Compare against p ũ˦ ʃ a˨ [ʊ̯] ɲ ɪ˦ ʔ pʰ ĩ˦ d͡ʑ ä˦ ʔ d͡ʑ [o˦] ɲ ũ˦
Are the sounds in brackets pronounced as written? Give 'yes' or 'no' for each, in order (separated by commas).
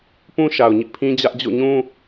yes, no